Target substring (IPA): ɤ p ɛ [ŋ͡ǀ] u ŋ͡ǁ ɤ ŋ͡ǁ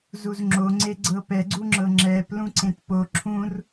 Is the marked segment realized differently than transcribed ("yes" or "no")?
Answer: yes